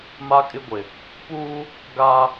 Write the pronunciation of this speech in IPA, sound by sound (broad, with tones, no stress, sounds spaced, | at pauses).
m a˦ kʼ ɪ˦ ɡʷ ɪ˨ | p uː˦ | ɡ aː˦